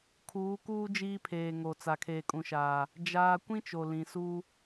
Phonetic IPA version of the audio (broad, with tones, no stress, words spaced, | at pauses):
kʰuː˨˦kuː˦ d͡ʒiː˦pʰeː˨ŋo˨ t͡sa˨kʰeː˨kʼũ˨ʃaː˨ | d͡ʒaː˦ kʷĩ˦ t͡ʃo˨ lĩ˨suː˦